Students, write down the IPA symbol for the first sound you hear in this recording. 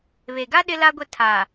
β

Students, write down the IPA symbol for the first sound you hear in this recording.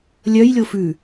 lʲ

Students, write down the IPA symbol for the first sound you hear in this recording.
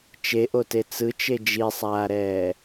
t͡ʃ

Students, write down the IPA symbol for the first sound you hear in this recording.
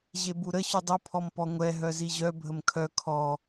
ʑ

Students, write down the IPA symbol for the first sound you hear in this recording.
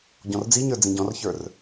ɟ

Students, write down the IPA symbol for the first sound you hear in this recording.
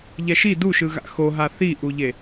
ʎ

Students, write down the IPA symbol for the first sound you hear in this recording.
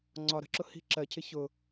ŋ͡ǀ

